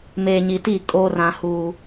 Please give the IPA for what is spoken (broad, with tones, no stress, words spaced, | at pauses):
meː˨ɲi˨ti˦˨kʼoː˦r ã˦huː˦